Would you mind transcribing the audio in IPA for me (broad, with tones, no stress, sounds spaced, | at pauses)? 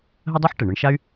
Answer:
ɦ ə˥ dˤ u˥ ħ ʈ ɛ˩ ɳ ɤ˧ ɳ ʃ a˥ y̯